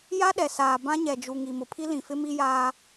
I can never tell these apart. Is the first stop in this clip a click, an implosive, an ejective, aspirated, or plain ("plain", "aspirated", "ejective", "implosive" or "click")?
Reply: implosive